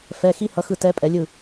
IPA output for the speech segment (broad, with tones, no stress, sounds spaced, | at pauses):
f ɛ˧˥˧ x i˦˥ h ʌ˧˥˧ x ɯ˥˨ t ɛ˦˥ pʼ ɛ˨˥ lʲ ɯ˥˨